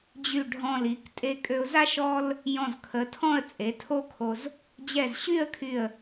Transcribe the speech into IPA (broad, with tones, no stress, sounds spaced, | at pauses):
d͡ʑ y˧˩ ɖʱ ɔ̃˧˩ l i˩˧ k tʼ e˧ kʼ ø˧ ʊ̯ z a˥ ʃ ɔ˥ l | j ɔ̃˧˩ z kʰ ə˩˧ tʰ ɔ̃˥˧ ə̯ t͡sʼ e˩˧ tʰ o˥ kʰ o˧ z | d͡ʑ ɛ˧˩ z ɕ y˥˧ ə̯ kʰ y˧˩ ə̯